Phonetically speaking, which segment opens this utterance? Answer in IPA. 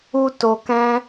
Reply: u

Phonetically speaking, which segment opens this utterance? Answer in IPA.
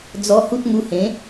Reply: d͡z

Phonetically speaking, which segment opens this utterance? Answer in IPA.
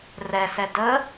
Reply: r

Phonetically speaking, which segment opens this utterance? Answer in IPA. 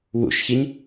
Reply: w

